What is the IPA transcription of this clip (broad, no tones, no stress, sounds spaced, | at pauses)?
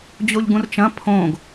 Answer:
d͡ʑ o ʎ ɡ ũ r t͡ʃ ɐ̃ pʰ õ ɡ